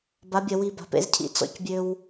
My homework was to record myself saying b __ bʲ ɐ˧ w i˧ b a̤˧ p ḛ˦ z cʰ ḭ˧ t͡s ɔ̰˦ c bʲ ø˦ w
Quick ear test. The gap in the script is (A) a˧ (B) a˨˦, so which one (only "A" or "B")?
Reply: B